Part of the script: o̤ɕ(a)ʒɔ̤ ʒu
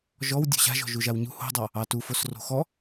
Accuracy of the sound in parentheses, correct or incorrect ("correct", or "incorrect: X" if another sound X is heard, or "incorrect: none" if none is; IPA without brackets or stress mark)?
incorrect: a̤